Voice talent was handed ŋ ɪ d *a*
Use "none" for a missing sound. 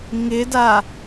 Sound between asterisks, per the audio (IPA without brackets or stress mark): a